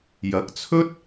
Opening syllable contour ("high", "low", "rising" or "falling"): rising